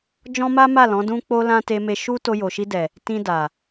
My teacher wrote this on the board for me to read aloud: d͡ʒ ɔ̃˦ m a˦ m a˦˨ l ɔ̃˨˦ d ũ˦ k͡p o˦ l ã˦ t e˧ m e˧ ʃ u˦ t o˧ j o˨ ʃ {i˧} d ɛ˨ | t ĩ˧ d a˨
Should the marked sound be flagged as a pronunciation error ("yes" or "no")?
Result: no